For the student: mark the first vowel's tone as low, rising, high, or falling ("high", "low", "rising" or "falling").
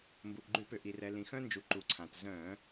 low